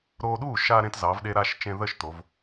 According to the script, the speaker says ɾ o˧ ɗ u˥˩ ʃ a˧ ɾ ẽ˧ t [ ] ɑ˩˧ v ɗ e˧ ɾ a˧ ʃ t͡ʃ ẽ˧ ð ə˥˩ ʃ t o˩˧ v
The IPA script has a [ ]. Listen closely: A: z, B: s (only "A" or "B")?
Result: A